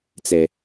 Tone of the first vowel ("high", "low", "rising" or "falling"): low